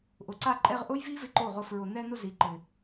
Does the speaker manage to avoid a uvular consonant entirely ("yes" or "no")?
no